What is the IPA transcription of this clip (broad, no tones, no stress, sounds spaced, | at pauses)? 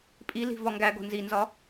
pʼ i l i̤ v ɒ ŋ ɡ æ ɡ o̤ n z i n z ɒ